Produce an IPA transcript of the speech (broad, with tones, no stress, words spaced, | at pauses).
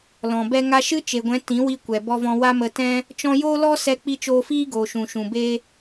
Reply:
lɔ̃˨ bɛ˧ ŋa˧ʃɨ˦t͡ʃe˨ɡʷɛ̃˨˦ tĩ˨˦ wi˧kʷɛ˨ bɔ˧vɔ̃˧ wa˦mə˧ tɛ̃˦ | t͡ʃɔ̃˧joː˦lɔ˦ sɛ˦k͡pi˦ t͡ʃoː˧fiː˦ɡoː˨ʃũ˨ ʃũ˨be˧